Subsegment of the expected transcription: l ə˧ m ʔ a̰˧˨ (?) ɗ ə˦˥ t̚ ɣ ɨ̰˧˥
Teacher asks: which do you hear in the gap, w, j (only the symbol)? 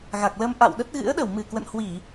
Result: w